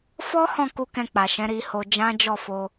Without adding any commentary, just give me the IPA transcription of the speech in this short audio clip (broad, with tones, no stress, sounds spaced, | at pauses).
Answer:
f ɔ˦ h ɔ̃˦˨ k u˧ k ɛ̃˧ k͡p a˨ ʃ ɛ̃˨˦ ɾ i˧ h o˧ d͡ʒ ã˦ d͡ʒ ɔ˦˨ f o˧